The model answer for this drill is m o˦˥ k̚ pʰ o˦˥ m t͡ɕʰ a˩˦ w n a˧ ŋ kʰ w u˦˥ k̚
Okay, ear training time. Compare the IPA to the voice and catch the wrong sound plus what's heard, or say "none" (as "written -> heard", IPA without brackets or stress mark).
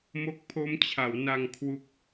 none